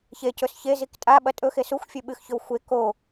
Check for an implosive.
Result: present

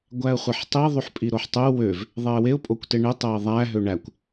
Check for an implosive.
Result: absent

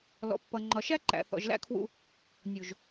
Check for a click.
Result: present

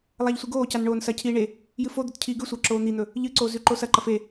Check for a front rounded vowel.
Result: absent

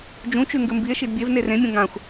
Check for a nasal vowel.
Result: present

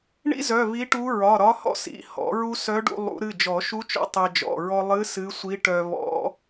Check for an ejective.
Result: absent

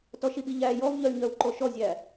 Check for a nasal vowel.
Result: absent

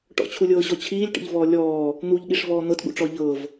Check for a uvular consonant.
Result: absent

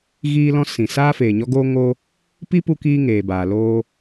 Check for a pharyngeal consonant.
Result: absent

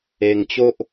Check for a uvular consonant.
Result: absent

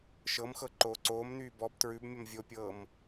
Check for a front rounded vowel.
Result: present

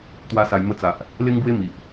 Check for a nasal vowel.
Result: absent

